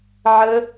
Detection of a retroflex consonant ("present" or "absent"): absent